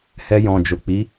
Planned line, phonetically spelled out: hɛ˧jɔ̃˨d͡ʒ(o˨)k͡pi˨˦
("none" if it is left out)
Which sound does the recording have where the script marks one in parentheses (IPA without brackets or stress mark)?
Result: o˨